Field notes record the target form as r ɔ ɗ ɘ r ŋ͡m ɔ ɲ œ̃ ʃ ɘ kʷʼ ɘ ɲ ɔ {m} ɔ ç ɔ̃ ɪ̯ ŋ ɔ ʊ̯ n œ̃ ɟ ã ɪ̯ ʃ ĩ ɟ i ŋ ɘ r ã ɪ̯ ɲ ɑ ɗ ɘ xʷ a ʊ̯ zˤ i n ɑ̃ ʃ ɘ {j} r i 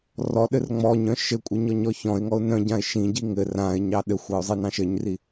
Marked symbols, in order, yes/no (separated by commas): no, no